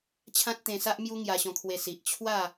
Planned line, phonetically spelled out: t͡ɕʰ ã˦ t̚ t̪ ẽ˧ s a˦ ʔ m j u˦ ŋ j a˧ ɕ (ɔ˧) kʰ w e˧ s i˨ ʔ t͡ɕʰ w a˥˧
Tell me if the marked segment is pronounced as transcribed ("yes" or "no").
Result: no